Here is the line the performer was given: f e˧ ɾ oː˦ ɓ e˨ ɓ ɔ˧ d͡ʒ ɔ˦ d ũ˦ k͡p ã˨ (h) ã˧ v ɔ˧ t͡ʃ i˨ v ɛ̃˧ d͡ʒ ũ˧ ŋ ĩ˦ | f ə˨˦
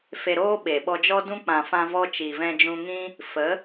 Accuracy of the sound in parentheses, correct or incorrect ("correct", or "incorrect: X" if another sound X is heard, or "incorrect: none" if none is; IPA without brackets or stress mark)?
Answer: incorrect: f